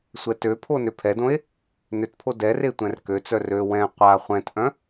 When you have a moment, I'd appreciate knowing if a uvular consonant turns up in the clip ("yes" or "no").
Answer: yes